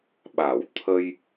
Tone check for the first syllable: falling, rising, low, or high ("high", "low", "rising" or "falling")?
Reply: low